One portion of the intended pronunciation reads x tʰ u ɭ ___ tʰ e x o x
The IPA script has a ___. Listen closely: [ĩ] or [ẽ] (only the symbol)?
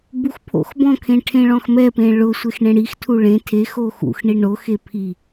ẽ